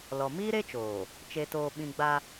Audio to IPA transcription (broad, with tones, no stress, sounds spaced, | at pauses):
l ɔ˨ m iː˦ ɾ e˦ t͡ʃ oː˨ | t͡ʃ e˨ t oː˨ ɓ ĩ˨ ɡ͡b a˦